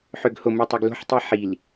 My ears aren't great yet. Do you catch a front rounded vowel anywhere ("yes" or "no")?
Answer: yes